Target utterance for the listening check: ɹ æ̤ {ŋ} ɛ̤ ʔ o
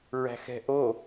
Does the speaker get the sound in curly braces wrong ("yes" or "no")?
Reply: yes